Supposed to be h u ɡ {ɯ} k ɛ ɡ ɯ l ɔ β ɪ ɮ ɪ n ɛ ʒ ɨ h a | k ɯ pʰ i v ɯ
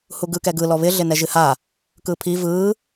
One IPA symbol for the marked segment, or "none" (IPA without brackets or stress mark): ɯ